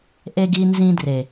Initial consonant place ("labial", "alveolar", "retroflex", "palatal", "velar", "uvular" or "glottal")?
glottal